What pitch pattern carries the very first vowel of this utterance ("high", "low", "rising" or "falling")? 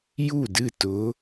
falling